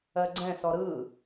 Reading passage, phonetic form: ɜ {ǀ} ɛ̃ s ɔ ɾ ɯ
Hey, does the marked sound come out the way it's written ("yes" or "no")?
no